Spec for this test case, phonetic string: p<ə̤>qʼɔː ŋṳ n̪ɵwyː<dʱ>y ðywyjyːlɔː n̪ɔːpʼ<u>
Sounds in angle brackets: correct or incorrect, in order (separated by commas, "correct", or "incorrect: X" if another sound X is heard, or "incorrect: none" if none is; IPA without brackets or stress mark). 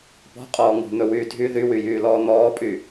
incorrect: ɔ̤, correct, incorrect: y